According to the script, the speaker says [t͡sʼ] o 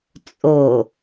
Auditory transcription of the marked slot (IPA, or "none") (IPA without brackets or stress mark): t͡sʼ